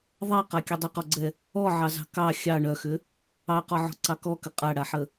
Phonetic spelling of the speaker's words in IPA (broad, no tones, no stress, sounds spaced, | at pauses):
ðˤ a q a kʲ ə dˤ ʏ q ɔ ɡ͡ǀ ɛ | ɔ ʕ ɑ z ɑ̤ k ɑ xʲ ɑ ɳ œ x ʏ | ɑ q ɔ ʕ ɔ̤ ǀ ɑ k ɔ k ə qʼ a ɽ a ħ ə